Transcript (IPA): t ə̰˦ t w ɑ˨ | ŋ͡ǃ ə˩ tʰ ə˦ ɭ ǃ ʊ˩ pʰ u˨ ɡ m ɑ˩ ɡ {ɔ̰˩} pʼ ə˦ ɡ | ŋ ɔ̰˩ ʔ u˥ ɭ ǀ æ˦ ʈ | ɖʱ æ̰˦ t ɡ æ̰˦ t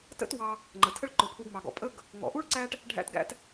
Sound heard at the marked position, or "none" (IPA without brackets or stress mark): ɔ̰˩